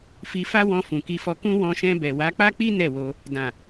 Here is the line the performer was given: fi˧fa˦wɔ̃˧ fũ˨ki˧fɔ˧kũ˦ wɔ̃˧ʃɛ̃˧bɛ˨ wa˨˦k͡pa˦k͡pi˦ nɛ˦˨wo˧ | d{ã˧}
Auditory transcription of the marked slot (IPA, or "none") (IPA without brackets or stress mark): ã˨